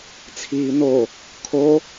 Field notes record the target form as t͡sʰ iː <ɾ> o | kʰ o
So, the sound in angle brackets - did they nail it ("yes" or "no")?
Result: no